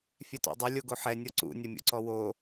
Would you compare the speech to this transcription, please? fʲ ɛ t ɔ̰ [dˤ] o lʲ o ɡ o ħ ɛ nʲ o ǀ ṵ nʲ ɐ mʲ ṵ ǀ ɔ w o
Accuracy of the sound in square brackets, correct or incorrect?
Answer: correct